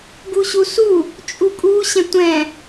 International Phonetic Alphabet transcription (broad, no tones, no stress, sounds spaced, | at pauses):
ɡ u ɕ u s u | t͡ʃʼ u kʼ u ɕ ɛ̃ tʷ ɛ̃